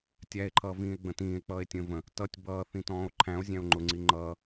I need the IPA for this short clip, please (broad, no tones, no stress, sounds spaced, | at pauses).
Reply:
tʲ æ e̯ ǃʰ ʌː v ĩː e̯ ɡ͡b ə̃ t ĩː e̯ k͡p ʌː e̯ tʲ ə̃ː v ə̃ | t ʌ tʲ b ʌː θ ĩ t ɔ̃ː o̯ ǃʰ æ̃ o̯ zʲ æ̃ o̯ ŋ͡ǃ ʊ ŋ͡ǀ i ŋ͡ǃ ʌː